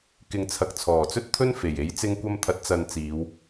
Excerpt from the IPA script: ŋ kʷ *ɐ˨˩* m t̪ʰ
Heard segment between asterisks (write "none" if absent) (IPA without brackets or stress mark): ɐ˧